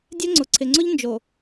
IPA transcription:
dʲ ɛ˦ ŋ͡ǀ ʊ˨ ǀʰ ɪ˨ ŋ͡ǀ ʊ˦ ʎ n d͡ʒ o˨

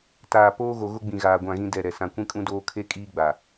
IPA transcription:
t aː˨ p oː˦ ɣ o˨ ɣ ʊ˦ ɡ͡b ĩ˨ ɣ aː˨ ɡʷ ã˦˨ ɣ ĩ˦ d ɛ˦˨ ɾ ɛ˨ s ã˨ kʷ ĩ˦ kʼ ũ˦ d oː˦ kʰ e˦ kʼ iː˦ ɡ͡b a˨

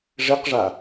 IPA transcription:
ʐ e q ʐ a

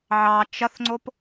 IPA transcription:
ʕ ɑ t͡ʃ ɐ θ ŋ͡ǀ o p

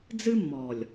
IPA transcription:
d͡z ɨ˦ mː ɔ˨ lʲ

